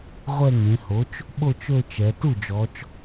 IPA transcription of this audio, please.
ʁʷ ɛ˥˧ ŋ ẽ˩˧ h o˩˥ t͡ʃ | ɓ o˥˧ t͡ʃ ɵ˥˧ t͡ʃ ɛ˩˧ t u˥˩ d͡ʒ ɔ˩˧ t͡ʃ

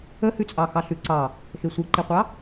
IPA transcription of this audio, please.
ə h ʉ t͡sʼ ɑ x ɑ ɬ ʉ ǀ ɑ | x e sʷ i ǃ i qʷ ɑ

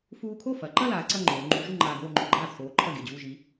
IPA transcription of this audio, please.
f uː˧ kʰ o˥˩ f ɐ˩˧ ǃ ɐ˥˧ l aː˩˧ ǀ ɐ˥˧ ŋ͡ǃ oː˩˧ ŋ͡ǃ uː˨˥ ʒ u˥˧ ŋ͡ǃ aː˧ ɡ oː˥˧ ŋ͡ǃ ɵ˥˩ ɡ͡ǃ aː˥˩ t͡sʰ oː˨˥ ǃʰ ɐ˥˩ ɡ e˥˩ d͡ʑ uː˥˧ ʒ i˨˥

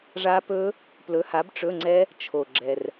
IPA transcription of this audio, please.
ʐ a˦˥ p ɵ˦˥ | p l ɵ˨˥ h a˨˥ b ʈ͡ʂ ɵ˧˥˧ ŋ͡ǀ ɛ˦˥ | t͡ʃʰ o˨˩ ɡ͡ǁ ɛ˨˩ r

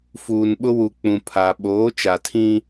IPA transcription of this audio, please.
f uː˨ n ɓ ʊ˦ w u˨ k͡p ũ˨ pʰ a˨ ɓ oː˨˦ t͡ʃ a˨ tʰ ĩ˦

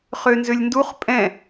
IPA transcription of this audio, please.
χ ø n z ø lʲ n d u χ pʼ ɛ̃

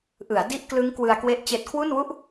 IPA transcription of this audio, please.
ʔ ɯ˩˦ a̯ d i˥˩ ʔ k l ɯ˦˥ ŋ k w ɯ˧ a̯ k w e˥˩ ʔ t͡ɕ eː˨˩ t̚ kʰ w u˥˩ n w u˥˩ ʔ

